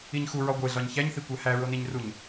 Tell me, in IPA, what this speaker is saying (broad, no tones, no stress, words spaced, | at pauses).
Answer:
iɲxu ɹɒɡʷeɮɒɲ çæɲθikʷæ hæɹoniɲruɲ